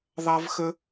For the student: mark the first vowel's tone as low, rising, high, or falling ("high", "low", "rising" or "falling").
high